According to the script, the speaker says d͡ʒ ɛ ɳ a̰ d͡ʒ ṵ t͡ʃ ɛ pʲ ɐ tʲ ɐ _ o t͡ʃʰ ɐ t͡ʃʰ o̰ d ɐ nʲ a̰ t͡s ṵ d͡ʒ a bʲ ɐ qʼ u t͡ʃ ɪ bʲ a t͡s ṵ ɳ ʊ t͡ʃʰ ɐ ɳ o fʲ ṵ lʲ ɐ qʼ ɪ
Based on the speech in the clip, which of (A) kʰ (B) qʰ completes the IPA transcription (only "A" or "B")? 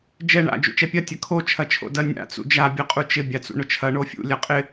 A